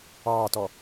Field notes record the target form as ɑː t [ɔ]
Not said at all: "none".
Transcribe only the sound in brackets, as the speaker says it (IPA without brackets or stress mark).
ɔ